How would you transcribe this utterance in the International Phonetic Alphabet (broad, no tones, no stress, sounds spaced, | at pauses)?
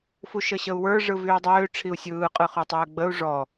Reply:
f u ʃ ə ɕ ə u̯ w ə˞ ʐ ɯ v y u̯ dˤ øː ʈ͡ʂʰ i u̯ sʲ ɯː qʼ ɯ χ ø tˤ øː ɡ͡b ə u̯ ʐ ɔ